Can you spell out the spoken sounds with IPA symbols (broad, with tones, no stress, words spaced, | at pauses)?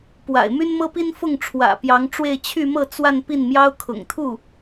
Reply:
pwa̰˨˩ɪ̯my˥nmɤ˥pi˥n fʊ˥˩ŋ ʈ͡ʂʰwä̰˨˩pjɑ˧˥ŋʈ͡ʂwe˥˧ɪ̯ t͡ɕʰy˥˧mɤ˥˧ t͡swa˥˧n pi˥˩nmjɑ˥ʊ̯ kʰʊ̰˨˩ŋ t̪ʰu˥˩